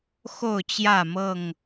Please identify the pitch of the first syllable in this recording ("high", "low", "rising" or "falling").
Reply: falling